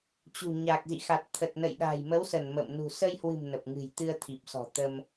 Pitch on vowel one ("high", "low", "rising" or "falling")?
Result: low